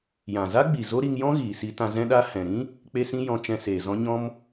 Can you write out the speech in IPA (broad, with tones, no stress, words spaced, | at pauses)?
jã˨za˦ɡ͡bi˨ zo˦ɾi˧ŋjɔ̃˦ ɣiː˨si˧tã˧ zɛ̃˧ɗa˧ hɛ̃˨ɾĩ˦ | k͡pe˦sĩ˦jɔ̃˧ t͡ʃɛ̃˧seː˨zɔ̃˦ ɲɔ̃˧m